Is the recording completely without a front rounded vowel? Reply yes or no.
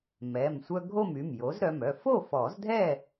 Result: no